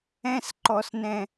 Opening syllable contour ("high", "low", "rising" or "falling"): high